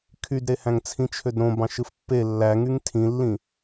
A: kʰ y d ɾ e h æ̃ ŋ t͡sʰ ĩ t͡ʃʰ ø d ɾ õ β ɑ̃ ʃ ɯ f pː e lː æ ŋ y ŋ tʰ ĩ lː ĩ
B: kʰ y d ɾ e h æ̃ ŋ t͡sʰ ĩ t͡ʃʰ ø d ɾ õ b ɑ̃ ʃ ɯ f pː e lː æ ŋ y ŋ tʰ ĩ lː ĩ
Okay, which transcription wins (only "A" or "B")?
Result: B